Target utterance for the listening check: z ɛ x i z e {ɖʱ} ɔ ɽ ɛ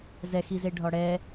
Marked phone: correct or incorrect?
correct